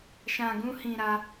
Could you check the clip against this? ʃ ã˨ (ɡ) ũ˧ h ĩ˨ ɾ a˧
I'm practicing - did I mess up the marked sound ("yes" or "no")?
no